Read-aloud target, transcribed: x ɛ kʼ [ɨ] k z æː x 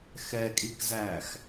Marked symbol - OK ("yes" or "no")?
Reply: no